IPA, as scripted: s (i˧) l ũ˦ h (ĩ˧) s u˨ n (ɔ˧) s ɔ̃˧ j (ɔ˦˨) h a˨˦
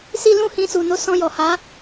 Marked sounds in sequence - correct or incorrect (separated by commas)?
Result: correct, correct, incorrect, incorrect